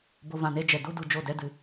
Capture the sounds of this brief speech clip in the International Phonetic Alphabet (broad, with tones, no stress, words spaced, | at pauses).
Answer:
bo˧vã˨ne˦d͡ʒɛ˨ du˦du˨ d͡ʒo˦˨dɛ˦dɨ˨